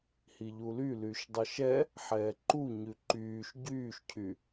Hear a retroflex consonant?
no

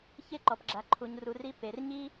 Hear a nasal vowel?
no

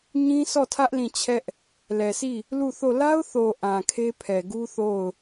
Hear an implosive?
no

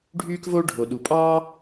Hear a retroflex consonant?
yes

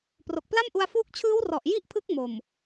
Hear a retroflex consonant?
no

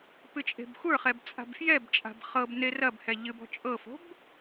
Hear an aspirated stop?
no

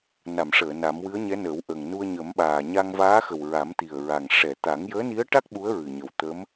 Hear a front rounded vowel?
no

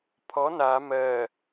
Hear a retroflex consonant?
no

